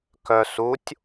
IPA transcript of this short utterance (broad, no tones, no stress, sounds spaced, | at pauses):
k œ s u tʲ